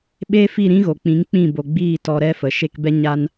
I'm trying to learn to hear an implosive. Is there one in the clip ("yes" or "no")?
yes